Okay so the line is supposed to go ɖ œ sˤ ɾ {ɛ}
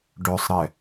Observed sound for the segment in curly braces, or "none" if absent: ɛ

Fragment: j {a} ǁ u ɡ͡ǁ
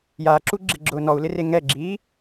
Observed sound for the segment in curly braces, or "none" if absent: a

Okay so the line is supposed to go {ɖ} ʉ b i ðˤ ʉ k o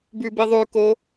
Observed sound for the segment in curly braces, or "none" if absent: b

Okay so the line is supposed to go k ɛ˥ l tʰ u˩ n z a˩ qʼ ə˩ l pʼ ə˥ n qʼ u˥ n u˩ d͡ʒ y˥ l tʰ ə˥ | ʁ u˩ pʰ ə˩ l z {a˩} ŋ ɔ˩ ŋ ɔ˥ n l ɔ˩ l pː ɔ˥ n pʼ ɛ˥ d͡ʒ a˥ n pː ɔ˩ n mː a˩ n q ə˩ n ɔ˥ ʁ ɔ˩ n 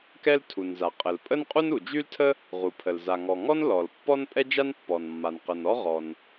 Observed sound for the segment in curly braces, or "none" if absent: a˩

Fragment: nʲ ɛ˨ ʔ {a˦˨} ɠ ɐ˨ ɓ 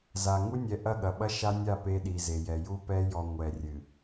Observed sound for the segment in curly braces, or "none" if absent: ɐ˦˨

